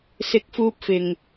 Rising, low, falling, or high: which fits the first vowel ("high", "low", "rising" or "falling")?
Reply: rising